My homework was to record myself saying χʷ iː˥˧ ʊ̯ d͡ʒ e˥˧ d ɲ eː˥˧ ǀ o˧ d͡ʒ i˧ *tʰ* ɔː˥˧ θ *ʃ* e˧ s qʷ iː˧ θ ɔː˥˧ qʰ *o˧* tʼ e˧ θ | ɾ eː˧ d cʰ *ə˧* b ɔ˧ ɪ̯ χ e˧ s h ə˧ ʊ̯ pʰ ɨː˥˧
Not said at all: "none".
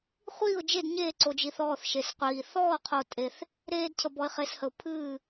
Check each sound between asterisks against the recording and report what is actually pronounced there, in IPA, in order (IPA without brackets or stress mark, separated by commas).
θ, ʃ, o˧, ə˧